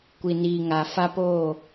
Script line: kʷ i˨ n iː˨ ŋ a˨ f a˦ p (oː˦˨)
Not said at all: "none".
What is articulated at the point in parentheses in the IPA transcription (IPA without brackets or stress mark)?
oː˦˨